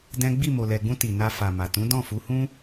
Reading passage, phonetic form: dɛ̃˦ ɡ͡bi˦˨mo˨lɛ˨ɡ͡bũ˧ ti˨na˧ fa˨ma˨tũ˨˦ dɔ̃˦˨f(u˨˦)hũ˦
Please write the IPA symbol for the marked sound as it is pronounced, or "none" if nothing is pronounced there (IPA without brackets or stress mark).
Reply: u˨˦